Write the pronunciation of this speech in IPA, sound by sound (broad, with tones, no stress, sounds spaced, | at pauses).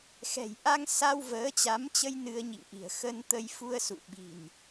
x ɛ̤˨˩ j ʔ a˧ ŋ s a˧ w v əː˨˦ t͡ɕ a˨˦ m t͡ɕ ə˧ j n ɨ˧ ə̯ ɲ ḭ˧˨ ŋ ʔ i̤˨˩ ə̯ x ə˧ n t̪ ə˧ j f u˧ ə̯ s ṵ˧˨ ɓ i̤˨˩ n